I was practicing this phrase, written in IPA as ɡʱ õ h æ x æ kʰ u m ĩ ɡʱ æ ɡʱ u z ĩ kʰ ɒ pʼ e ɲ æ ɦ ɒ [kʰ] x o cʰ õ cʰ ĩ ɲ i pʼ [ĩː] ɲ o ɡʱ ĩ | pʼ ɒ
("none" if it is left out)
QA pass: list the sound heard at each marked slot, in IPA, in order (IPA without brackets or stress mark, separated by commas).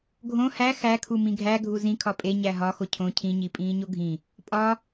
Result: none, ĩː